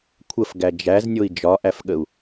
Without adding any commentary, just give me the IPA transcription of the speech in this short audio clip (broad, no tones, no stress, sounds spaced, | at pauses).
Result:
kʷʰ ə f ɡ æ d͡ʒ æ z nʲ o i̯ d͡ʒ ɒ ʔ æ f ɠ ə u̯